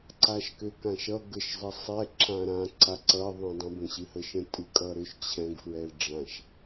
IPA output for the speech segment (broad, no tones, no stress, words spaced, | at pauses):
ǀaʃkøkãʃʌ ɡəʃzˤʌsˤɛ ǁãɾã ǀaǀʌ ðˤɛ̃dˤə̃ bə̃ɕɨhəʃə̃ tʼɨkʼʌɾʏʃ t͡ɕʰɛ̃ɡ fɹɛlɖ͡ʐãʃ